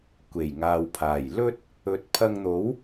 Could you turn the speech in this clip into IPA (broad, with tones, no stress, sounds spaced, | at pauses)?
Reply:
kʷ e˨˩ j ŋ aː˨ w pʰ aː˨˩ j l ɵ˥ t̚ | ɵ˨ t̚ pʰ ɐ˧ ŋ n̪ o˨˥ w